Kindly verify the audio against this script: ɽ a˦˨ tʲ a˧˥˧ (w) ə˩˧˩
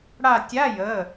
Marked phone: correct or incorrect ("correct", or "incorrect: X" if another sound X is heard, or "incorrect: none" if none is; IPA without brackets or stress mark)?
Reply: incorrect: j